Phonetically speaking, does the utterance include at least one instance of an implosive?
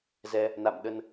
yes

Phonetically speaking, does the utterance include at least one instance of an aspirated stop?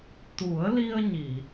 no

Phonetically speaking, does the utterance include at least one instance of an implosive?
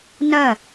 no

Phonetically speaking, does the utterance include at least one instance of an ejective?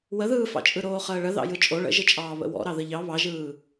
yes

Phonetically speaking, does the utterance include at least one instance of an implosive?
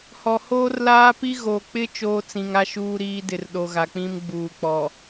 yes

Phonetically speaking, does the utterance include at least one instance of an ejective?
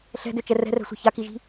no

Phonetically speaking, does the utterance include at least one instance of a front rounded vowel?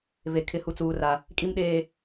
no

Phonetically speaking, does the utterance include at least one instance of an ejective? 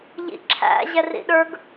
no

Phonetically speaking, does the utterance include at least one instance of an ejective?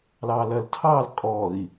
yes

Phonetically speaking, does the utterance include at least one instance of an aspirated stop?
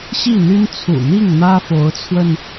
yes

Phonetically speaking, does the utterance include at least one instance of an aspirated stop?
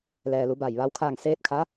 yes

